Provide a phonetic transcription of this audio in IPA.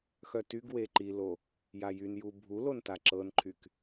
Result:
x œ t y ɡ w e ǃ i l o | j a j y n j u bʱ u l o n t a ǁ ɤ n ǃʰ y k

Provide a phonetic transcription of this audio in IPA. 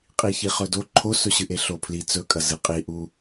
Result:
qʼ i ç i χ ɵ d o ǃʰ o s ɵ ɕ ɨ ʔ e ɬ o pʰ l i t͡s ɵ kʼ ɐ z ɨ qʼ i ʔ u

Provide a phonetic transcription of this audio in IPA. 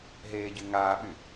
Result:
ɦ eː ɟ y ŋ aː ɓ y

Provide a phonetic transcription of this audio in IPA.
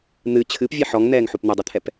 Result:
n̪ ɨ t͡ɕʰ ɨ p vʲ ɛ ħ ɔ ŋ n̪ ɛː ŋ ħ u p n̪ ɘ dˤ ɨ t̪ʰ ɛ p

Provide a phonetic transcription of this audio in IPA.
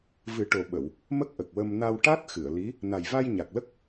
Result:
v ɨ˨˩˦ ʈ o˨˩ ɓ ə˨˩˨ w | m ə˦˥ k̚ ʔ ə˨˩ k̚ w ə˧ m n a˧ w ʈ a˦˥ t̚ x ɨ˨˩˨ ə̯ l i˧˥ | n a˨˩ j v a˧ j ɲ a˨˩ k̚ l ə˦˥ k̚

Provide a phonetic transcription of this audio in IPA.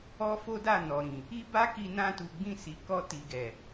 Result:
ɔ˦ f o˦ d a˦˨ n ɔ˨ ɾ ĩ˨ | i˦ b a˦ k i˧ n ã˧ t u˨ ɡ͡b ĩ˧ s i˨ k ɔ˧ t i˨ ɡ ɛ˨

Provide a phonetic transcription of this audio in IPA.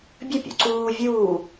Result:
bʲ ɵ pʲ ṵ ǀ uː vʲ uː

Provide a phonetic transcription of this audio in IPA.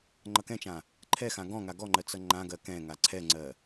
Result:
ŋ͡ǃ ʌ k ɛ̃ t͡ʃ ã | ǃʰ ɛ x ã ɡ ɔ̃ ŋ a ɡ ɔ ŋ͡ǃ ɜ t͡s ʌ ŋ͡ǃ ã ɡ ɜ k ɛ̃ ŋ a ǀʰ ɛ ŋ͡ǀ ɜ

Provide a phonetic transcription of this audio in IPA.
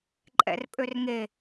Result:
ǃʼ ɛ̰ r pʼ ø r ŋ e

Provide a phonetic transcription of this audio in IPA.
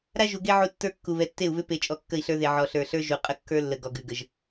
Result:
ɾ a˦ ʒ u˨ ɡ e˦ ʕ u˦ tː ə˞˦ kː u˨ β ɛ˨ tː e˦˨ u̯ β ʏ˦ p e˨ t͡ʃʼ ɔ˨ kː ə˦˨ i̯ ɬ ə˞˦ ð e˨ ʕ ɔ˨ ɬ ə˞˨ ɬ ə˞˦ ʒ u˨ qʼ ə˦ kː ə˞˦ lː ə˨ ɡ ɔ˨ ɡ ʉ˨ ɡ ə˨ ʒ

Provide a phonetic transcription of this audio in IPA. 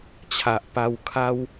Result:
t͡ɕʰ a˨ ʔ p a˧ w kʰ a˦ w

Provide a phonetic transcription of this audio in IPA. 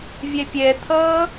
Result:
vʲ ɛ pʲ ɛ t̪ʰ ʌː

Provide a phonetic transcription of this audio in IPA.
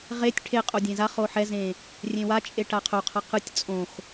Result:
ʁ e tʲ ʈʰ e qʼ o dʲ ẽ z a χ o ħ ɛ z ẽ | rʲ ẽ w a t͡ʃʼ e ʈ a qʰ o qʰ ʌ q ɯ tʲ t͡sʼ õ x

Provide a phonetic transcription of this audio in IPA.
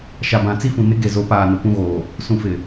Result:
ʃ a˨ b ã˨ t͡s i˦ f ũ˨ n ɪ˦ ɡ e˨ z o˨˦ p aː˨ n o˨ p ũ˦ ɣ oː˨ | s ũ˨ f ɪ˨

